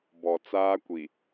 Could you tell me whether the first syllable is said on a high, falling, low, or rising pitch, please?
low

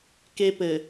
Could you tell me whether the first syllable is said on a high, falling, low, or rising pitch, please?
high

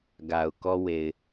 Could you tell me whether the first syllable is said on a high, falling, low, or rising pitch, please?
low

